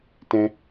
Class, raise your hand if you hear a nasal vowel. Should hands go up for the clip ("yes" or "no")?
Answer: yes